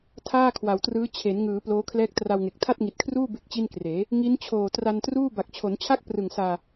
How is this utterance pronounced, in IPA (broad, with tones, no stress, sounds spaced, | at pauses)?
tʰ aː˥˩ kʰ w a˩˦ w t r ɯː˦˥ t͡ɕʰ e˩˦ n ŋ ɯː˩˦ p l oː˦˥ kʰ l ɛː˦˥ k̚ t r a˧ w ŋ e˨˩ k̚ tʰ a˥˩ t̚ ŋ i˨˩ t̚ kʰ r uː˥˩ b e˥˩ k̚ t͡ɕ i˥˩ n k r eː˩˦ | ŋ i˦˥ n t͡ɕʰ oː˨˩ t r a˧ n t r uː˥˩ b a˨˩ k̚ t͡ɕʰ o˩˦ n t͡ɕʰ a˥˩ k̚ p r ɯ˨˩ ŋ s aː˧